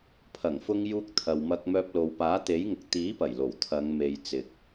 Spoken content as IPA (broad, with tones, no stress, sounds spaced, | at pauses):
pʰ ɐ˨˩ ŋ f ʊ˧ ŋ j uː˧ k̚ t̪ʰ ɐ˨ w m ɐ˧ k̚ m œː˧ p̚ l o˨ w p aː˨˥ t̪ e˨˥ j ŋ ʊ˨ k̚ t̪ iː˨˥ p ɐ˨˩ j l o˨˩ w t̪ʰ ɐ˨˧ ŋ m e˨ j t͡s ɪ˨ k̚